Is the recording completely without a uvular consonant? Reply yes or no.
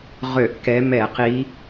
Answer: no